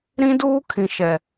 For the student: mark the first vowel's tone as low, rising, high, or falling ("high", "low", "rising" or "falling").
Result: high